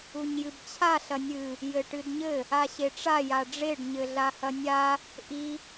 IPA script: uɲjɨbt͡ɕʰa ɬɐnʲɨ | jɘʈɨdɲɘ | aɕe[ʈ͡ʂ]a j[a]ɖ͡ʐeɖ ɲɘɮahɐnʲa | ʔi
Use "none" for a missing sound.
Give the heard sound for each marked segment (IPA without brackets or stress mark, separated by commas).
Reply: ʈ͡ʂ, a